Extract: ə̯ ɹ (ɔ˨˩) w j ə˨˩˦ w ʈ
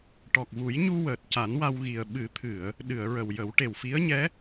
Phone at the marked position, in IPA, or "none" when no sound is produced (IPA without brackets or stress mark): ə˨˩